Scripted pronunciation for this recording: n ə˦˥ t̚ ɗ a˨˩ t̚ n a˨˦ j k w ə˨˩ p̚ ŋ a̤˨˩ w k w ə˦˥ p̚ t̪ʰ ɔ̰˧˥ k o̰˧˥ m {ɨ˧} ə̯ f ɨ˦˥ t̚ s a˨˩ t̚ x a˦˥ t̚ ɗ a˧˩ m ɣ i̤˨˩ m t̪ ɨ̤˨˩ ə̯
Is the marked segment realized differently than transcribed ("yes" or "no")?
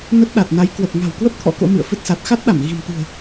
yes